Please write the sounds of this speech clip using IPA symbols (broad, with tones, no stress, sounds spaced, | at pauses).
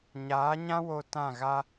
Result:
ɲ aː˨˦ ɲ ã˦ w o˧ t ã˦˨ ɣ a˦